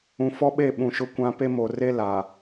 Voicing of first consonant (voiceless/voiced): voiceless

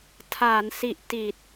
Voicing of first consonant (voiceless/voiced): voiceless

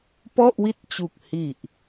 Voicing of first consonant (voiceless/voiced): voiceless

